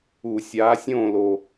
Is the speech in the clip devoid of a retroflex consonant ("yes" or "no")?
yes